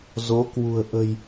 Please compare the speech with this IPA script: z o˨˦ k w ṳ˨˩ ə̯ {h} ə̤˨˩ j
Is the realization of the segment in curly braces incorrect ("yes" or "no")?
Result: yes